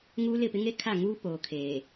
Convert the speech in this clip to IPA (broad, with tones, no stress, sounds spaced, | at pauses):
ŋ uː˦ l ɪ˦˨ p ɪ˦ ŋ e˦ kʰ a˦˨ ŋ uː˦ p oː˨ kʰ eː˨